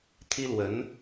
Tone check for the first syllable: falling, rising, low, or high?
high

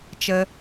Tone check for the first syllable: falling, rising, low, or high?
low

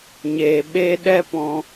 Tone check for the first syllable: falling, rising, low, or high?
low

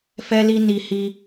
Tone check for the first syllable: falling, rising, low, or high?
high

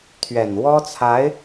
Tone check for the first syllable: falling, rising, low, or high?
low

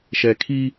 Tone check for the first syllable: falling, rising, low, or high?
low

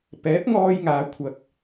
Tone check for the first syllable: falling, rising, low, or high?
rising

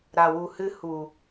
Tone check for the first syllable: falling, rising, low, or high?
low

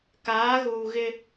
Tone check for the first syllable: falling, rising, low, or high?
rising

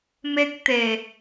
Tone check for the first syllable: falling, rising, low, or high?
high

